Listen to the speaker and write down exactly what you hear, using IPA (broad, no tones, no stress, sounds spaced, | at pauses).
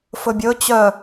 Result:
f ɵ bʲ ɵ t͡ɕ œ